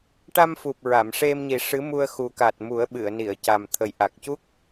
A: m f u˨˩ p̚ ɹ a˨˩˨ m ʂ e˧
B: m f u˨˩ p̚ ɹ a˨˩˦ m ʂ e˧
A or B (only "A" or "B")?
A